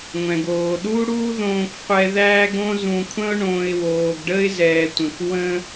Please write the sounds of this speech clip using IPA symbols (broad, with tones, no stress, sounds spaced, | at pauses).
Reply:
ŋʷ ɛ̃˩ ɡ oː˩ ɗ u˥ ɽ uː˥ ð õː˦ k qʷ ɛ˦ ð æː˦ ɡ õ˦ z ũ˨ kʷʰ ə̃˦ ʊ̯ ɳ õː˨ ɪ̯ w oː˩ ɡ ɖ ə˦ ɪ̯ z ɛː˩ tʷ ə̃˩ k w ə̃˥